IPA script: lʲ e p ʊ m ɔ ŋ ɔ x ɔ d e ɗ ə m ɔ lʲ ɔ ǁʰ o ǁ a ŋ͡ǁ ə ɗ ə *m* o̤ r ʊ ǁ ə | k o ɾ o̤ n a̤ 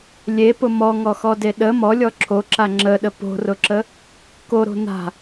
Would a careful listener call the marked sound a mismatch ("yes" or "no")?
yes